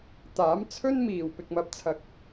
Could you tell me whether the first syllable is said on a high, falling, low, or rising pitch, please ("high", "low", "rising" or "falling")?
rising